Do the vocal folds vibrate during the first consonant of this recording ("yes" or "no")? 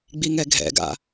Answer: yes